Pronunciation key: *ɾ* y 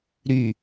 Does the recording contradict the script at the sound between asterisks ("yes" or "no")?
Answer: no